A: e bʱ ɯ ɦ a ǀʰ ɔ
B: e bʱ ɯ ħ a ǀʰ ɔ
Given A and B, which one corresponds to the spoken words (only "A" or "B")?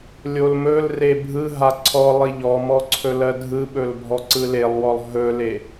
A